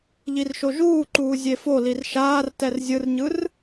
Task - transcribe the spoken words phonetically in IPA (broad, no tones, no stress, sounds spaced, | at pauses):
ʎ i r ʃ o ʒ uː ǃ uː zʲ e f o l i r ʃ aː r t ɛ r zʲ ɯ r ɲ ɯ r